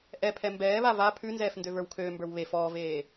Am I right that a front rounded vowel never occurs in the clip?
no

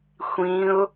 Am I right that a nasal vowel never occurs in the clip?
no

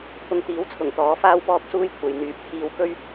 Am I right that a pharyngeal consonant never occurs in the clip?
yes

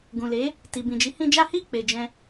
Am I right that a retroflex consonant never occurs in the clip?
yes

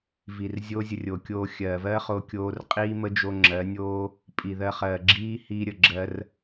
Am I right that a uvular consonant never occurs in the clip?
no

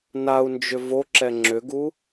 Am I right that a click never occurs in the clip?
no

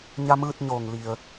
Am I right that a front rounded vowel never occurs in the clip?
yes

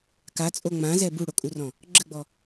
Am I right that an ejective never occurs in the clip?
no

